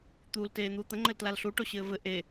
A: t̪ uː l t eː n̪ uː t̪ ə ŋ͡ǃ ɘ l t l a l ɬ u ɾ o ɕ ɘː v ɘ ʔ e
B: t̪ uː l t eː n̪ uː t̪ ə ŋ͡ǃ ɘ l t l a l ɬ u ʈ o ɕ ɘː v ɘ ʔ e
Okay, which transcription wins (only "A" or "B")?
B